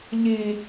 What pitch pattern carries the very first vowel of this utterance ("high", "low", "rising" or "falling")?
low